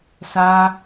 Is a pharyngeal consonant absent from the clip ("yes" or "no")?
yes